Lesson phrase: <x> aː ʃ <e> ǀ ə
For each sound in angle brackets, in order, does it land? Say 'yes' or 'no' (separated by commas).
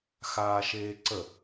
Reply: yes, no